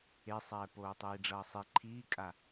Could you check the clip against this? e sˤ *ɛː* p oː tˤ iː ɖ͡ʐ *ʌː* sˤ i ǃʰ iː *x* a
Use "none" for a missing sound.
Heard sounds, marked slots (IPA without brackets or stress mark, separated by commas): ɛː, ʌː, kʼ